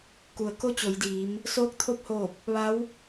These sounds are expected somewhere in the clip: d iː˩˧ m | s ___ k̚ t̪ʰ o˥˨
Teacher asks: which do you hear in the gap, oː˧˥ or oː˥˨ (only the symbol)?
oː˧˥